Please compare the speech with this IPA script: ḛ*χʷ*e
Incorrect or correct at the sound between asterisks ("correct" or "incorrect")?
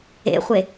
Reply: correct